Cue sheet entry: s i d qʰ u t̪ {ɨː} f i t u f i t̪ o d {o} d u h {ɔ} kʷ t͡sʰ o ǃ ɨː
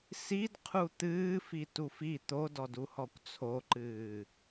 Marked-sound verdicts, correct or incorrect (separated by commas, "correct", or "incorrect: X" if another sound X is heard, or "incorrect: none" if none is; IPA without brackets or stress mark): correct, incorrect: ɔ, correct